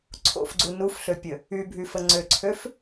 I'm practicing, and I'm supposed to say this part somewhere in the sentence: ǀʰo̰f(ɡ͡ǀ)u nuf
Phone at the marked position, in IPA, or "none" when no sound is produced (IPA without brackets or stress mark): ɡ͡ǀ